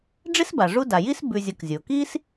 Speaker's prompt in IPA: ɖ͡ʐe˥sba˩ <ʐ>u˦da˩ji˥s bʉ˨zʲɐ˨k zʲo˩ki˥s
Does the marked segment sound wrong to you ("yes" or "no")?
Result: no